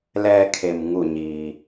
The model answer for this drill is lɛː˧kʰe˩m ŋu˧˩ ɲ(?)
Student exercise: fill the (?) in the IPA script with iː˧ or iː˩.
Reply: iː˩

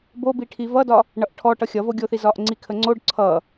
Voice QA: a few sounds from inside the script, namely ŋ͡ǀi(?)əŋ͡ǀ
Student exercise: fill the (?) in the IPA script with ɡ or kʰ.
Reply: kʰ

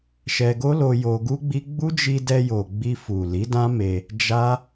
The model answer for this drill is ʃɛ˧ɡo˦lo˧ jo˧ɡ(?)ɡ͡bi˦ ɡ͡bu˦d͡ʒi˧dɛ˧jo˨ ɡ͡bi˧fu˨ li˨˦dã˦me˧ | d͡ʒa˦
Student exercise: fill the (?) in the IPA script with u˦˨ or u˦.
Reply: u˦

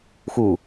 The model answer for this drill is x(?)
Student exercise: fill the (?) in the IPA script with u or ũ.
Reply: u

